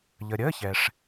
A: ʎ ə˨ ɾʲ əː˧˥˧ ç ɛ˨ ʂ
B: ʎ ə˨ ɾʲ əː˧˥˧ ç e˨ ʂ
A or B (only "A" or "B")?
A